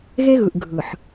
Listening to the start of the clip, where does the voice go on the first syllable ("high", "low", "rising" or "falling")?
high